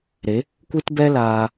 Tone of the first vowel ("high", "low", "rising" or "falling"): rising